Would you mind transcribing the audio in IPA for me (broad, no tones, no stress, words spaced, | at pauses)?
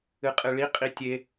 ɨqʼɨɭi qʼitʲe